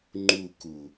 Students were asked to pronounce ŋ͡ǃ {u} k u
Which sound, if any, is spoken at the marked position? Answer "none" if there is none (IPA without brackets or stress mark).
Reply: u